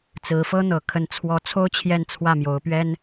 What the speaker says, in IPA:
t͡s ɹ̩˧˥ f ɤ˥ n̪ ɤ˨˩ kʰ ə˧˥ n t͡sʰ w ɔ˧˥ t͡sʰ o˥ ʊ̯ t͡ɕʰ j ɛ˥˧ n t͡sʰ w ä˥˩ m j o˧˥ ʊ̯ p ɥ ɛ˥ n

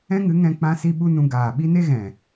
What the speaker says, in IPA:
ɛ̃˦ ŋ ɨ˨˦ ŋ ɛ̃˧ k͡p ã˧ s i˧ ɓ u˦ n ũ˧ ɡ aː˨ ɓ i˦ n e˦ ɣ ɛ̃˨

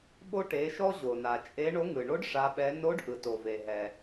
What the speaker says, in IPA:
ɓ o˧ ʈ e˩˧ ʃ ɔ˧ ʑ o˩ n a˩ t͡ʃʼ e˧˥ ɳ o˧˥ ŋ ɯ˩ ɳ o˧˥ ɖ ʂ a˩˧ ɓ ɛ˩˧ n o˧˥ ɖ ʔ ɯ˩ t o˩ v e˩ ɦ ɛ˩

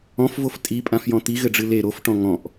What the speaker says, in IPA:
ɔ̃ f v o f tʼ i pʼ ã f j ɔ̃ t̪ i ɣ ɘ ɖ͡ʐ ɨ l e ɾ o f ʈ ɔ̃ ŋ ɔ̃ ʔ

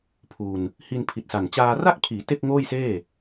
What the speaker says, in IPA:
pʰ u˧ n | h i˧ n pʰ i˨˩ t̚ s a˨˩ n t͡ɕ aː˧ r a˥˩ k̚ pʰ iː˩˦ t e˥˩ k̚ ŋ oː˥˩ j s eː˥˩

